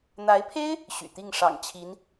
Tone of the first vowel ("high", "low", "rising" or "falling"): rising